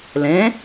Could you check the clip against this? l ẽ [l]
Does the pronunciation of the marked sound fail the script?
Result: yes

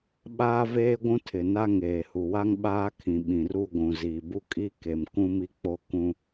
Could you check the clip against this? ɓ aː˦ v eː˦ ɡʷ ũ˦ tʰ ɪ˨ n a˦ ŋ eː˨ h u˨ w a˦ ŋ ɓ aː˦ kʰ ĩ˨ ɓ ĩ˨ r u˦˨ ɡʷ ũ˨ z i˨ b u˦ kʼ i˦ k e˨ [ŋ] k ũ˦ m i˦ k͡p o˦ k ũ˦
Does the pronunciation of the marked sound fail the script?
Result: yes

